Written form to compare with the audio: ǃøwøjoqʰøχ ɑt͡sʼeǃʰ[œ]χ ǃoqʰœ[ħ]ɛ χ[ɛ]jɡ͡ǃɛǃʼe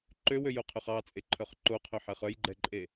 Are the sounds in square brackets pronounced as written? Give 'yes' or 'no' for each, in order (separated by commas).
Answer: yes, yes, no